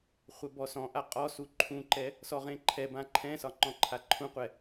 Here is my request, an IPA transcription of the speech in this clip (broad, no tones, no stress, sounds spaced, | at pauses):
χʷ ɛ b ɔ s ɔ̃ ʔ a qʼ ɔ s u ǃʰ ũ ǃ ɛ | s ɔ ʁ ẽ ǃʰ ɛ b ã ǃʰ ɛ̃ s ɒ ŋ͡ǃ ɔ̃ ǃʰ a ǃʰ ũ qʷ ɛ